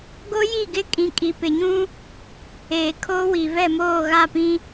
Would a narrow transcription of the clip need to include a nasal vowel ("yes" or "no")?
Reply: yes